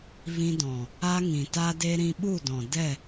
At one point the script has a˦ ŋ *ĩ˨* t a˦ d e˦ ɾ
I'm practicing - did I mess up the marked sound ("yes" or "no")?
no